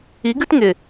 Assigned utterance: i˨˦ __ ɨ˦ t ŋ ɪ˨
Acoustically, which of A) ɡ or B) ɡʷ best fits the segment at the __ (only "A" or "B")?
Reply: A